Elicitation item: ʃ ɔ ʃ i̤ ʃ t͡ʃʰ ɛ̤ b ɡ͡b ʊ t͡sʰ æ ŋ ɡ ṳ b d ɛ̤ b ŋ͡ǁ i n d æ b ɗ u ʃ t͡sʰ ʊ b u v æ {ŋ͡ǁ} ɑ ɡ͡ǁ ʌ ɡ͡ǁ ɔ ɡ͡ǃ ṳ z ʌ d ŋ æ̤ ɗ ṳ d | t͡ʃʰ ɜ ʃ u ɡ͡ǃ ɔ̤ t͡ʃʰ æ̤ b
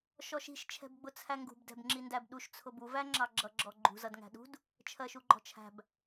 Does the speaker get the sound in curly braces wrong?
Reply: no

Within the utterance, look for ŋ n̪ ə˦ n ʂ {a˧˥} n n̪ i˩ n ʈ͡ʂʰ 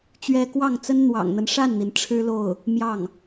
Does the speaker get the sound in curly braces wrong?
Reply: yes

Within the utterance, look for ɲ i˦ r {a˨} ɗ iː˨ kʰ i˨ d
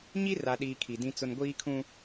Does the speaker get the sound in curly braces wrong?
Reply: no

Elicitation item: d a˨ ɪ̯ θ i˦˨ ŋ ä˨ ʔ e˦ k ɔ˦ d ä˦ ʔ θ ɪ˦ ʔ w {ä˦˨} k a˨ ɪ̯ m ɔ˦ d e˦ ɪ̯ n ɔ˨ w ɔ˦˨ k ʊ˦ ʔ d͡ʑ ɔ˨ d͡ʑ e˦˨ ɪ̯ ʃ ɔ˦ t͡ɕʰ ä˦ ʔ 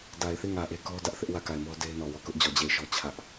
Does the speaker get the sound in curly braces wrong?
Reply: no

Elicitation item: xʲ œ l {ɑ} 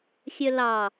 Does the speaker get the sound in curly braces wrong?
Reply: no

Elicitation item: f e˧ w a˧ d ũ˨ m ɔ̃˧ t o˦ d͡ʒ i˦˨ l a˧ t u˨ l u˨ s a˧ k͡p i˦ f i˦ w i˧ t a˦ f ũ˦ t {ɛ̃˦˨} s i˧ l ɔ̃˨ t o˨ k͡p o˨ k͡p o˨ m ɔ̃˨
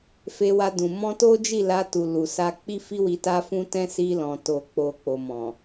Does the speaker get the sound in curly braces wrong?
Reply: yes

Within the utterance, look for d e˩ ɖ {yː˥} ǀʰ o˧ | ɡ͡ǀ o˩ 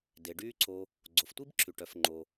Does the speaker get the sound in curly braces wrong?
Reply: no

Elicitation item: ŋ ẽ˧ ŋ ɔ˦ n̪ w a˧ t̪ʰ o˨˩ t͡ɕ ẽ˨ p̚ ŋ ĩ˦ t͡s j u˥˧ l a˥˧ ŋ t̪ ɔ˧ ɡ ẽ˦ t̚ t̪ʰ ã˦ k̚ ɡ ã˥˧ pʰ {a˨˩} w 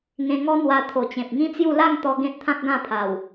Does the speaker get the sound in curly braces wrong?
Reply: no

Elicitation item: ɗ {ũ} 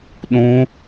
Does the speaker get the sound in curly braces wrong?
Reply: no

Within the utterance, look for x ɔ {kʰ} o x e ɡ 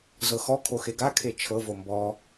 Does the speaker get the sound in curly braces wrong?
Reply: no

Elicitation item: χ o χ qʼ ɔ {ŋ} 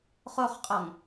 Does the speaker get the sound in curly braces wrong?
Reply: no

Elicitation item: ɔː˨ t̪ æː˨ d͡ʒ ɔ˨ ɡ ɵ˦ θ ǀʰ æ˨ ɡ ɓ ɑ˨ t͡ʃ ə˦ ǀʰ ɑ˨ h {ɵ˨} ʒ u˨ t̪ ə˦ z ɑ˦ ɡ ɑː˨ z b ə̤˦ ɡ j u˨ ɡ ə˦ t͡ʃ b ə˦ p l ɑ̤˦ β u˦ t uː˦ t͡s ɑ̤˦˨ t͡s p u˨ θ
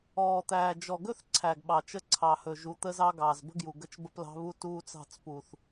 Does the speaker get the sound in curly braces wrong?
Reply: no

